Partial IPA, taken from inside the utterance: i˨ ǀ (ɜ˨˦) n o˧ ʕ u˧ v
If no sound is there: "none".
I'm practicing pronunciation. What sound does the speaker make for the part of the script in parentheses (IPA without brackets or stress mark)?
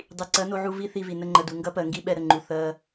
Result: ɜ˨˦